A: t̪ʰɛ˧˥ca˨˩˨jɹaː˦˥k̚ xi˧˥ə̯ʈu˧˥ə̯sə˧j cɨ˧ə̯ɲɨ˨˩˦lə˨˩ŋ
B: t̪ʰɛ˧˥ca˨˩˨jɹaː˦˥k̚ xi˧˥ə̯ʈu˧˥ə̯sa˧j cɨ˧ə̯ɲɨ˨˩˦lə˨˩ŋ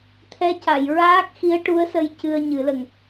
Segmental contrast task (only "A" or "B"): A